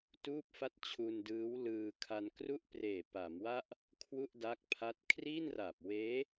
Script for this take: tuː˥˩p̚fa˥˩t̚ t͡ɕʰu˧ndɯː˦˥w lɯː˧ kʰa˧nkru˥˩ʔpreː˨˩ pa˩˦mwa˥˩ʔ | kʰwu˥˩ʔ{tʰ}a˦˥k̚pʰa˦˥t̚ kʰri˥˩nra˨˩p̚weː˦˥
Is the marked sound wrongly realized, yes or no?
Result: yes